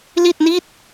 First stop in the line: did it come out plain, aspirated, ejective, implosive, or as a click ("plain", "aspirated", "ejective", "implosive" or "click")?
plain